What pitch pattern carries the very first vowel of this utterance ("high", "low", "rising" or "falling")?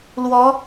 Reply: rising